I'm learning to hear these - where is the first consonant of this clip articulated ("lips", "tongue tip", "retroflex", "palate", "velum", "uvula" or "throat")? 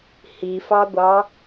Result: throat